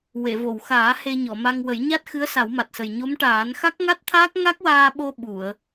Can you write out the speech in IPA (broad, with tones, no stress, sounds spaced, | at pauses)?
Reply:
w e˨˩˨ v o˨˩˨ w x aː˨˩˦ h e˧ ɲ ɔ˨˩˨ m a˧ ŋ w ə˨˩˦ j ɲ a˦˥ t̚ x ɨ˧˥ ə̯ s a˨˩˦ w m a˨˩ t̚ s ə˨˩ j ɲ o˧˥ m ʈ aː˨˩˦ n x a˦˥ k̚ ŋ a˦˥ t̚ t̪ʰ aː˦˥ k̚ ŋ a˦˥ k̚ w aː˧ ɓ o˧ ɓ u˨˩˨ ə̯